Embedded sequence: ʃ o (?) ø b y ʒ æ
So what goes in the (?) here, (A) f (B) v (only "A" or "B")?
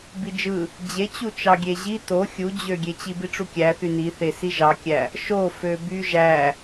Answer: A